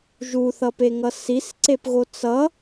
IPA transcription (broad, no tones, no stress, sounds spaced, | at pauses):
ʒ u θ ʌ p e ŋ ʌ s i s ǀ e p ɣ o t͡s ʌ